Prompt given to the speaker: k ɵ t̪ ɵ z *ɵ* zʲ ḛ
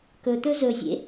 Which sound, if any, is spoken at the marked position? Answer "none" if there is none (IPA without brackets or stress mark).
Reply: ɵ